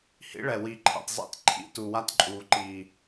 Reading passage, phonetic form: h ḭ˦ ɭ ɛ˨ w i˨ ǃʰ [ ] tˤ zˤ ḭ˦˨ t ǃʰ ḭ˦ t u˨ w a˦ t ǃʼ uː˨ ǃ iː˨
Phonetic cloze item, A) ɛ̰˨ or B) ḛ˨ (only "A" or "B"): A